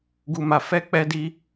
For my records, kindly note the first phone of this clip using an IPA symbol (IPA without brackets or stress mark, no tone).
ɡ